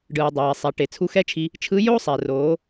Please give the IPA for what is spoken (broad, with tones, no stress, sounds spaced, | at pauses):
ɖ ɯː˩ dˤ ɛː˩ sˤ ɛ˩˧ ʈ e˩ t͡sʰ u˧˥ x ɛ˥ t͡ʃʰ i˧ | t͡ʃʰ ɯ˧˥ j o˥ sˤ ɛ˩ r oː˩˧